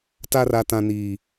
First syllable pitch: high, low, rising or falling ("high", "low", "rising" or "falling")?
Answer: high